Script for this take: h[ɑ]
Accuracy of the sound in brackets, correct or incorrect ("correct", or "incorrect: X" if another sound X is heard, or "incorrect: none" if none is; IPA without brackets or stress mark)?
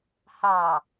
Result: correct